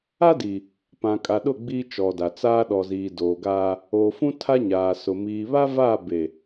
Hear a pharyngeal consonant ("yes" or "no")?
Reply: no